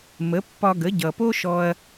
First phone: m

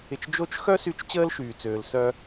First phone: ɪ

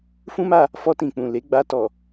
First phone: f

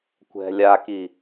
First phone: kʷ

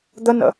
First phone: d̪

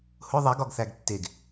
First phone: h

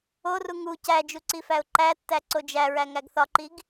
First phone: o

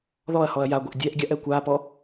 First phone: ð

